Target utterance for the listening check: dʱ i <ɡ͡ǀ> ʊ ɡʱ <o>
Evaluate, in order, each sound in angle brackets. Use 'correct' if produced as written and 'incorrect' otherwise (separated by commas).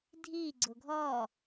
correct, incorrect